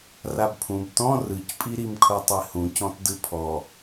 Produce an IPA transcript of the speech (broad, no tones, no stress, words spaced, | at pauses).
rabpʰũb tɔ̃ rɯcpʼiɾim kʰotˤehũcɔ̃t dɯpʰɔ